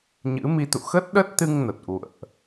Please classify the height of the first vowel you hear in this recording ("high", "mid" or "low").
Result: high